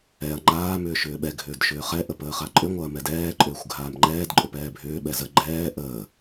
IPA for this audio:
ɛɐ̯ ŋ͡ǃaː mʏːʃʏːɓɛ ɡʱʏːdʃʏːχɛ ʔəpəːχaǃʼʏ ŋʷaɐ̯mɛdɛː ǃʼʏːxʷɡʱaːmŋ͡ǃɛːd ǃʼʏpɛːbʱʏː ɓɛzə ɡ͡ǃɛː ʔəː

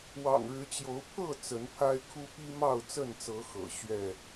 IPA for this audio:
wɑ̰˨˩ŋɻɻ̩˨˦t͡ɕjo˨˦ʊ̯ pʰɤ˥˨ t͡sə˨˦npʰa˦ɪ̯kʰu˦ pi˦mɑ˥˨ʊ̯t͡sə˥˨nt͡sɤ˨˦ xɤ̰˨˩ ɕɥɛ˥˨

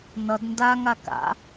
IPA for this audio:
nʌd ndaŋa ka̰

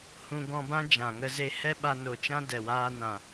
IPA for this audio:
hũ˧ɡɔ̃˧bã˦ d͡ʒã˨ŋə˧ze˧ hɛ˦ɓa˧no˨t͡ʃã˦ dɛ˨waː˧nã˨

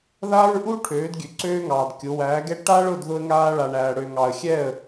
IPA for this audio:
ðaː˦ɹʔuː˦ ʈʰøː˨˦dɡʲø˨ ǀøː˦ŋɑː˨dkʲʊ˨˦ wæː˨˦ɡɛ˦ ʈa˦ɭʊ˦˨dðʊ˧ə̯ŋaː˧ ɭa˨ɳæː˨ ɽø˨ŋɑ˨ə̯xʲɛ˦˨ə̯

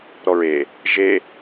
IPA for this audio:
ɾɔɹe | ʒe

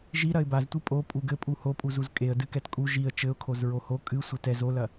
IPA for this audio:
ʒi ɾɐɪ̯baztʷi pʼo pʼuɡɘpʼu hopʼuzuz kʼeə̯ dɨkɛtkʼu ʒiə̯ t͡ʃɘʊ̯kʰoz ɹoho kʼɨ sʷɘtɛz olɐ

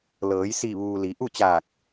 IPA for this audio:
lɤː˩˧jsi˧˩ʋuː˩ li˩˧ ʔu˥˨t͡ɕaː˧˩k̚

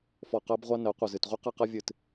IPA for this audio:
fɔ˨ qɜ˦bʁʷa˦nɜ˨˦ qʷɨ˨ zɨ˨tʁʷi˦ qa˦qa˦vʲɨ˦˨t

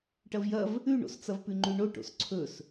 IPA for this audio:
ʈɐvjɐv | ʉɳo̰st͡sɐv pʉŋ͡ǃʉɳo ʈo̰sǀʰɵs

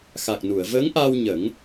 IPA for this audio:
xa˨˩k̚nu˨˩˨ə̯ vəː˧˥ŋʔaː˧w ɲə˨˩˦ŋ

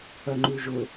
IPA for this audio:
œŋ͡ǃʉʒʊ

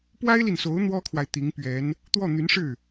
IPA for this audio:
pwa˥ɪ̯li˨nso˧˥ʊ̯ n̪wɔ˥kʰwa˨ɪ̯ t̪i˧˥ŋpɥɛ˧˥n | t̪wɔ˥˩n̪y˧˥nʂɻ̩˥˩

